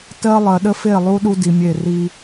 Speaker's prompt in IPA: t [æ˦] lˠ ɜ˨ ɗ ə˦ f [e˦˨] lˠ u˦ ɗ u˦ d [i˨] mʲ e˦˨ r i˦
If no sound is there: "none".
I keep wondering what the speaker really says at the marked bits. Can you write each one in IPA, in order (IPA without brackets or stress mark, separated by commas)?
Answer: ɜ˦, e˦˨, i˨